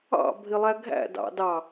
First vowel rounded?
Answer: no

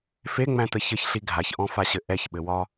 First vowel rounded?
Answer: no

